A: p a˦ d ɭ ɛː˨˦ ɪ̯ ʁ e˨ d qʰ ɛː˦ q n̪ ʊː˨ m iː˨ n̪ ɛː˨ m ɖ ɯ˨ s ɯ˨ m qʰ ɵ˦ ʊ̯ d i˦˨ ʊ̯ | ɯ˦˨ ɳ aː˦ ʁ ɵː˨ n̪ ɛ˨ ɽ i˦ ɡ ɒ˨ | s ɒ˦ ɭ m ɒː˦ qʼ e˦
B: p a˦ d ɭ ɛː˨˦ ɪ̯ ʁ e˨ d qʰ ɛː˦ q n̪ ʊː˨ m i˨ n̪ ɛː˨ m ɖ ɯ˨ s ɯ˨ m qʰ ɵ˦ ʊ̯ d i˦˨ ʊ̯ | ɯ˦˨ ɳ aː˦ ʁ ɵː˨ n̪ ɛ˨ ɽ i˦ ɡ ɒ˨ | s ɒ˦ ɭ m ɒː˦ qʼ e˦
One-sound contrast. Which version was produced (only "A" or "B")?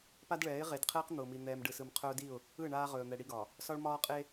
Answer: B